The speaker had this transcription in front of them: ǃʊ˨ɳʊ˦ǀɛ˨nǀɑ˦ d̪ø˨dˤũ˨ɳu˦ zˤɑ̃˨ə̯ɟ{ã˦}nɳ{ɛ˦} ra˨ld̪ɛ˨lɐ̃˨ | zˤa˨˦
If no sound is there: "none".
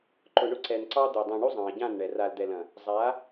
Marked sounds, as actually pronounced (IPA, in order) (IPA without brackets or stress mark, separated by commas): ã˦˨, ɛ˨